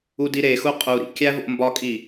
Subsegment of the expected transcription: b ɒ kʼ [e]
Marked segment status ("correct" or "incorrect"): incorrect